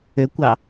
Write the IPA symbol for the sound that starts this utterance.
ø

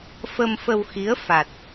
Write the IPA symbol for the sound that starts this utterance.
f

